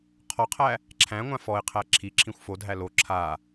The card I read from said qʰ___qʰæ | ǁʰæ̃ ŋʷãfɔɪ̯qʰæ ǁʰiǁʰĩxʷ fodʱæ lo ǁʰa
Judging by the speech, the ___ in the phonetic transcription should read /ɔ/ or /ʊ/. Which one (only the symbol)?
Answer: ɔ